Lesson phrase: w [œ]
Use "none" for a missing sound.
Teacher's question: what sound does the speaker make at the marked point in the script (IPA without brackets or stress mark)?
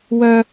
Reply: œ